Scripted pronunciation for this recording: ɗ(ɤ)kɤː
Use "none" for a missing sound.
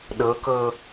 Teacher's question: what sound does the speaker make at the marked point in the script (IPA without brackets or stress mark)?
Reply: ɤ